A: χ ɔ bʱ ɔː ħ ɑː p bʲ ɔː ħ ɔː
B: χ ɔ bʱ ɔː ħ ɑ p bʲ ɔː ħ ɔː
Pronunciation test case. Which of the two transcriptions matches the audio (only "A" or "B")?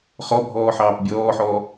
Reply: A